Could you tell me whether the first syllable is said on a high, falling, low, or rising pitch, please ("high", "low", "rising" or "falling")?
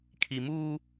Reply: low